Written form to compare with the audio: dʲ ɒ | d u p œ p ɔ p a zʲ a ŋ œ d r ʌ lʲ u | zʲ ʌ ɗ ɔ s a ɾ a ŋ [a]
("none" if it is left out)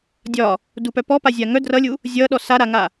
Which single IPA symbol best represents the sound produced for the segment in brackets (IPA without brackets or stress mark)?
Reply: a